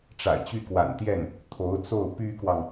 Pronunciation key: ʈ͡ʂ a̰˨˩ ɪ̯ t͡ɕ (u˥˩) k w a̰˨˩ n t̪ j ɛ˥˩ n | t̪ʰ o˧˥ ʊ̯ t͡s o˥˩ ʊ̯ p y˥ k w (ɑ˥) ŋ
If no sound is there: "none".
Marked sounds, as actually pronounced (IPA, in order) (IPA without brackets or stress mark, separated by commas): y˥˩, ɑ˨